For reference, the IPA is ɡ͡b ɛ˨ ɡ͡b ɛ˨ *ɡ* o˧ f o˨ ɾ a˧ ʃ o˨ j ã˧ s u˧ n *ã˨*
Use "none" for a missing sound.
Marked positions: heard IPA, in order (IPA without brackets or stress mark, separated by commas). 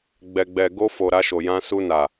ɡ, a˨